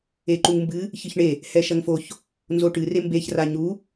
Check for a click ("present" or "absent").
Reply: present